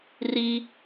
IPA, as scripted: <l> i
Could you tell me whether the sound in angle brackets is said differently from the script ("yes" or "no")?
yes